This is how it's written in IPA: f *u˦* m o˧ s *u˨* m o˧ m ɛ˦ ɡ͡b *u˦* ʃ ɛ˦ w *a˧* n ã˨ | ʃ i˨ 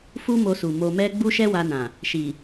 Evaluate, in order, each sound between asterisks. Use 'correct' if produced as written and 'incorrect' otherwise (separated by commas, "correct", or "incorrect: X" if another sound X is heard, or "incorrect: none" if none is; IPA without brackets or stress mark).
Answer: correct, correct, correct, correct